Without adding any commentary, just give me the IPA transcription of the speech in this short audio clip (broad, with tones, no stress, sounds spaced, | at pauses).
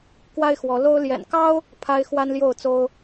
k w a˦ ɪ̯ x w ɔ˨˦ l o˦ ʊ̯ l j ɛ̰˨˩ n k ɑ˦ ʊ̯ | pʰ a˦ ɪ̯ x w a˦ n l j o˥˨ ʊ̯ t͡s o˦ ʊ̯